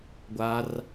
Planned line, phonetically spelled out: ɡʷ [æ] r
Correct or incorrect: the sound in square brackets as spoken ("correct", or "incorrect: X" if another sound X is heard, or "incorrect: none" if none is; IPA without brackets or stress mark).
incorrect: a